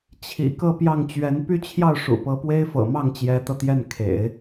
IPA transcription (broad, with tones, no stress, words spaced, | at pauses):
t͡ɕʰḭ˨˩ kɤ˥˧pjɑ˥˩ŋt͡ɕɥɛ˧˥n py˥˧t͡ɕʰjɑ˥˩ʊ̯ʂṵ˨˩ pɤ˧˥pwe˥ɪ̯fɤ̰˨˩mɑ˥˩ŋ t͡ɕjɛ˧˥t̪ɤ˧t̪jɛ˥˩n kʰḛ˨˩˦ɪ̯